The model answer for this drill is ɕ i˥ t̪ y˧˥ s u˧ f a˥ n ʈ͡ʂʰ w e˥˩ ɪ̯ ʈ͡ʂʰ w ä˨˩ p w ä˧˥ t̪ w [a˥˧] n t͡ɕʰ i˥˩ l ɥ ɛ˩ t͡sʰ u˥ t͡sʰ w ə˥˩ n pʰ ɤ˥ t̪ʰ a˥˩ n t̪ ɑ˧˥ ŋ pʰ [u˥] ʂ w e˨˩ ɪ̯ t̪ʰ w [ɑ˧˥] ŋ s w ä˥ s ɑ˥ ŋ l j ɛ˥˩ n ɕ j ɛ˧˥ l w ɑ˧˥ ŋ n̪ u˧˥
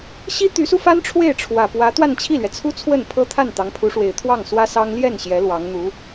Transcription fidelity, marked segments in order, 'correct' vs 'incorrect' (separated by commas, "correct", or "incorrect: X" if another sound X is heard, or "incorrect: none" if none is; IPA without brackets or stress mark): correct, incorrect: u˧˥, incorrect: ɑ˥˩